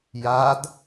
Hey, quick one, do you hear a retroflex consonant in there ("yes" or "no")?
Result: no